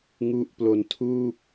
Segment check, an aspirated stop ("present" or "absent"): present